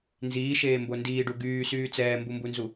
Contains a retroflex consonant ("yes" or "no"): yes